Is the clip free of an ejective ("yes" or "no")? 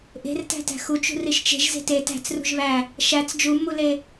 yes